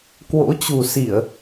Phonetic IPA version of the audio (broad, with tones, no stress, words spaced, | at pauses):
kwo̰˧˥t͡ɕu˨˩si˧˩˨ə̯